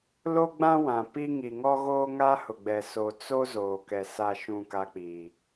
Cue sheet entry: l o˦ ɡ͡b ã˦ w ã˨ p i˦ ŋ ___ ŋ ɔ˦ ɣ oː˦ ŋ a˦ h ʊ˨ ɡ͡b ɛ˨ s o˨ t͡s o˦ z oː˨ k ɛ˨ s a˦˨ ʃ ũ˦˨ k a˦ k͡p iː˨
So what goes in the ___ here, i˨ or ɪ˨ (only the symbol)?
i˨